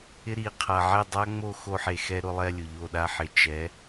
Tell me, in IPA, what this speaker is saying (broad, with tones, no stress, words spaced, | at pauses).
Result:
ɪ˦ɾi˨˦ qʰa˨ʕɛ˦˨dˤa˦ŋ͡mo˦˨ xo˧ħe˨xɛ˧ ɾʊ˧lˠɛ˧lʲʊ˨ ʎo˦˨ɗa˦ħɪ˨˦ t͡ʃɛ˨˦